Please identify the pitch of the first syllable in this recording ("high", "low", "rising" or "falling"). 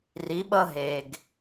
rising